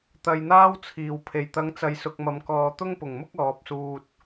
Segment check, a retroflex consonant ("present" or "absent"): absent